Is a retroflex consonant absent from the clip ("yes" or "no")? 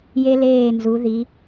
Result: yes